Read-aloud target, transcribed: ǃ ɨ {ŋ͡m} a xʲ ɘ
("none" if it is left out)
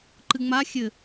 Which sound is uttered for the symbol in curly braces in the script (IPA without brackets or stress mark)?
ŋ͡m